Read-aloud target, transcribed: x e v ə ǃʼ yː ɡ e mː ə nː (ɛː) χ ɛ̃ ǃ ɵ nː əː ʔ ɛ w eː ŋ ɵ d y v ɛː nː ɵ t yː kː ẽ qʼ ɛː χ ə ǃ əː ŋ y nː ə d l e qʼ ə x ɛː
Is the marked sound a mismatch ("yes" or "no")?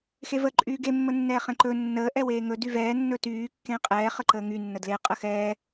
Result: no